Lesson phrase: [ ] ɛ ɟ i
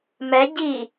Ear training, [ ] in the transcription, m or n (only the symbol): m